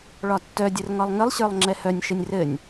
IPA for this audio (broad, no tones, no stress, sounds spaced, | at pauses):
ɭ ɒ tː œ dʲ ɘ r ŋ ɒ lˠ ŋ ɘ lˠ ɕ ə˞ lˠ ŋ͡ǁ ɛ h œ nʲ ʃ ɘ nʲ r ɘ nʲ